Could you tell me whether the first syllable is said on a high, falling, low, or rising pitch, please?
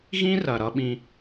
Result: high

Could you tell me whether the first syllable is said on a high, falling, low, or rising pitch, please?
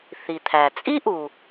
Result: low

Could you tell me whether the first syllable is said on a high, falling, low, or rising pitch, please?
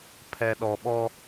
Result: low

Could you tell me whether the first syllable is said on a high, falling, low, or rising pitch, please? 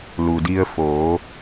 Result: low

